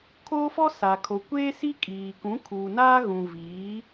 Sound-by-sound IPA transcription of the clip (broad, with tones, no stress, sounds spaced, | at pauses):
kʰ oː˦ f ɔ˦ s a˨ kʰ o˨ kʷ eː˦ s i˦ kʼ iː˨ k ũ˨˦ kʰ uː˨ n aː˦ ɣ ũ˨ v iː˨˦